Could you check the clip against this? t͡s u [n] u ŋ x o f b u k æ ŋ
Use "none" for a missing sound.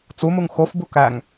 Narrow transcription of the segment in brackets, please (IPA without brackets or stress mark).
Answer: m